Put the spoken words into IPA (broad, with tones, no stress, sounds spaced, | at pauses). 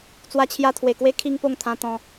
t͡s w a˧ t͡ɕʰ j a˧ t̪ʰ w e˨˩ k w e˦ kʰ i˦ ŋ p o˥˧ ŋ t̪ʰ ã˧ t̪ ɔ̃˧